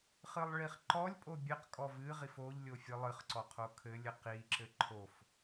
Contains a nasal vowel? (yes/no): no